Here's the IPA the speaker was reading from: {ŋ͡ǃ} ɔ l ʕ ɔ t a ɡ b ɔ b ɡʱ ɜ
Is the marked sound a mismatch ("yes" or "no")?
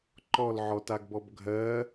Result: yes